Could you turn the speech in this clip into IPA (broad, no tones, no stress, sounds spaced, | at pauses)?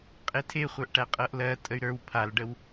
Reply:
qʼ e tʰ e χʷ ə˞ ʔ ʈ æ qʼ ɤ ʔ l ɜ tʼ ə y̯ ɾ ə˞ w pʰ a l ɖ ə w